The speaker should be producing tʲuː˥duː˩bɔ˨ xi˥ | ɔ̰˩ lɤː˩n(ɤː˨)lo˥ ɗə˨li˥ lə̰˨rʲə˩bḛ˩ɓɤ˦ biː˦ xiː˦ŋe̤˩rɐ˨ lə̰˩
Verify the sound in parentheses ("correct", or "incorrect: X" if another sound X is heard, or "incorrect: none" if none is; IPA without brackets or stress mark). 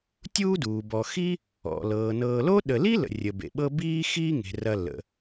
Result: correct